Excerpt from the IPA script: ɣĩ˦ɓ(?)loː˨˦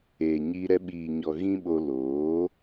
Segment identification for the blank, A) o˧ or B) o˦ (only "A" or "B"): A